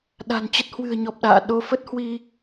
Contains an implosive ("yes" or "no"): yes